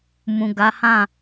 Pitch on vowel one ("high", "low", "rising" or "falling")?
low